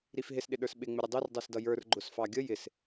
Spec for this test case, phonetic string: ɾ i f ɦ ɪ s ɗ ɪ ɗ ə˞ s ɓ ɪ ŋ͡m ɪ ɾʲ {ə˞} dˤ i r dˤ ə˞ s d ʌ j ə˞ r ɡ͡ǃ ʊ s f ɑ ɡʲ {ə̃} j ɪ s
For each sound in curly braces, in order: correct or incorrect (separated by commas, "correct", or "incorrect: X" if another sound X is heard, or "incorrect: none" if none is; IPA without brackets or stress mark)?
incorrect: ə, incorrect: ə